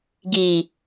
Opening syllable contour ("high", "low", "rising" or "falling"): low